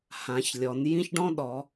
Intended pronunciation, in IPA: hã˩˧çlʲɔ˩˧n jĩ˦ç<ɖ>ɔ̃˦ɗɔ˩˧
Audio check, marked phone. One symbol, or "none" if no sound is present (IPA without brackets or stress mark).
ɖ